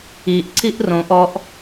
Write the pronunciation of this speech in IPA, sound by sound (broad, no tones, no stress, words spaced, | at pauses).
iʔ ǀiʔrõʔ ɔʔ